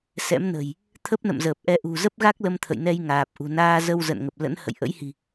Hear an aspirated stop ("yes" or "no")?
yes